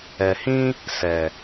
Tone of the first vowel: low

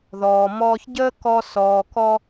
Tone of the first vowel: low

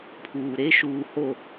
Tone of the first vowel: low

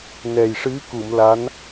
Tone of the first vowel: low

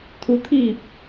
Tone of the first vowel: rising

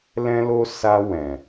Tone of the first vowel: high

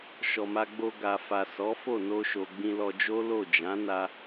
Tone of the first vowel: low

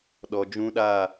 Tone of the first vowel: low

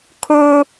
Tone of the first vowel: high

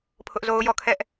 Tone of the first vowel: high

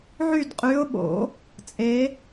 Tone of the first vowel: falling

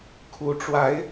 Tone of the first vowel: rising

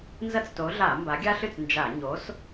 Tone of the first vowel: high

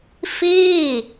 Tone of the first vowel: falling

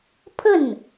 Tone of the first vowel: falling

